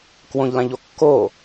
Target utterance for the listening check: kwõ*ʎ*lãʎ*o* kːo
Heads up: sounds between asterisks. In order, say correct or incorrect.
correct, correct

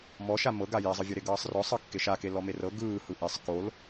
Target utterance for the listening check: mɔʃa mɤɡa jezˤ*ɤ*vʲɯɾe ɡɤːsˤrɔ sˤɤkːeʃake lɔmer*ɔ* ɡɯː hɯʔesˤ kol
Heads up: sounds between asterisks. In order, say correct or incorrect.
incorrect, incorrect

